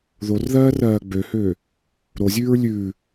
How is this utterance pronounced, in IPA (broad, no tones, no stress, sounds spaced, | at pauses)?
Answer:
ð o r ð ɜː r ɜː ɡ͡b ø h øː | ɾ o zʲ ʉː ɹ lʲ ʉː